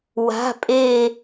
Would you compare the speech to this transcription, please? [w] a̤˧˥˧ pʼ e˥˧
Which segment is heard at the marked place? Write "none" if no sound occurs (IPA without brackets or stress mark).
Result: w